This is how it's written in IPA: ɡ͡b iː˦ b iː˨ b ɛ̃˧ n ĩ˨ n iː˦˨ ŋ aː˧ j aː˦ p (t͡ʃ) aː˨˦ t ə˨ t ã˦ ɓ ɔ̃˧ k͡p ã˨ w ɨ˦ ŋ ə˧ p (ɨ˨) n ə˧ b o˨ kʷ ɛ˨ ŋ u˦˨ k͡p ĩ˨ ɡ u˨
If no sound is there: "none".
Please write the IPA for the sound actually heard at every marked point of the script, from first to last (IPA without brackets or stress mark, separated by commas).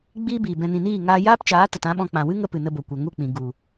t͡ʃ, ɨ˨